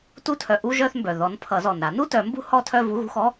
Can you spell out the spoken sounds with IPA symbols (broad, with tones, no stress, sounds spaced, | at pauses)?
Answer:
t u˥˧ tʰ œ˨˦ ʔ u˧˥˧ ʒ œ˥˧ θ m b œ˩ ð ɔ˨˦ n pʰ ʌ˨˩˦ z ɔ˩ n ɾ a˨˩˦ n u˥˧ t œ˨˩˦ m b ṳ˧˥˧ h ɔ˥˧ tʰ œ˥˧ v u˧˥˧ ɣ ṳ˥˧ x ɔ˧˥˧